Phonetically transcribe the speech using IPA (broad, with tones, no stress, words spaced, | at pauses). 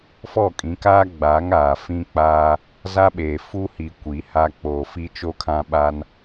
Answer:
fɔ˦˨kʼĩ˨˦kaː˦ɡ͡baː˨˦ŋ aː˨ fĩ˦k͡pa˦ | za˦ɓe˨ fu˦hi˨ kʷi˨˦ha˦ k͡poː˨fi˦ t͡ʃo˦kʰã˦ɓa˦n